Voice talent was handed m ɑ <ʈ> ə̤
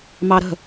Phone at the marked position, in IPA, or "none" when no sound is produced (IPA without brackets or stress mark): ɾ